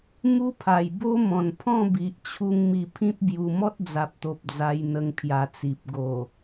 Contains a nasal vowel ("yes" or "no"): yes